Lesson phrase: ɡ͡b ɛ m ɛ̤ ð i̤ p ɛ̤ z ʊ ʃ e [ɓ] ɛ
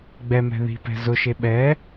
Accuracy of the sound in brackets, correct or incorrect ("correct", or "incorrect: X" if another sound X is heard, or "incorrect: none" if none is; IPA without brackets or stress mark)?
correct